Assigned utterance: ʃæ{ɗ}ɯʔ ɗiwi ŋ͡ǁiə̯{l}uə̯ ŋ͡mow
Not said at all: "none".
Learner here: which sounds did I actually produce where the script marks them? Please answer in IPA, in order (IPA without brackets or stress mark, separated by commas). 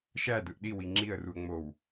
d, r